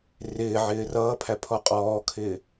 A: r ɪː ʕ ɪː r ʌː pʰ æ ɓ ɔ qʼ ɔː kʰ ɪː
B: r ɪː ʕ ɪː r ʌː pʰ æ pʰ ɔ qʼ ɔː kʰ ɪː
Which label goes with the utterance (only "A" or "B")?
B